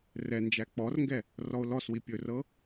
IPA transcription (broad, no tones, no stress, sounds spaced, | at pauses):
r ɛ n d͡ʒ æ k͡p ɔ r ŋ ɡ ɛ | r ɔ o̯ l ɔ s w i pʲ ɵ r ɤ